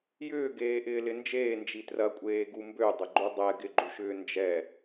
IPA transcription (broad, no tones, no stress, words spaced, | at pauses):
jʏːɡeː ʔɪːlɪnd͡ʒeːnd͡ʒi trɐkʷʼeːɡu mbødˤə ɡ͡ǃudˤɛ ɡɪɡ͡ǃuʃʏː nd͡ʒɛ